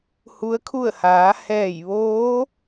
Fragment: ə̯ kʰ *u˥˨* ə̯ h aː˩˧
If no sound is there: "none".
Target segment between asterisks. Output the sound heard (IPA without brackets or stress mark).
u˥˨